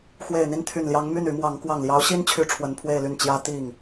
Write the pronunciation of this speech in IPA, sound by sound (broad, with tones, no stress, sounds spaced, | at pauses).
x w e˨˩ ɪ̯ n̪ i˥˩ n t̪ʰ y˨˩ n l j ɑ˧˥ ŋ m y˥˩ n y˧˥ m w ɑ˧˥ ŋ k w ɑ˨˩ ŋ l j ɑ˧˥ ʊ̯ ɕ i˥ n t͡ɕʰ y˥˩ ʈ͡ʂʰ w ə˧˥ n pʰ w e˥˧ ɪ̯ l y˥˩ n t͡ɕ j ä˥ t̪ i˥˩ ŋ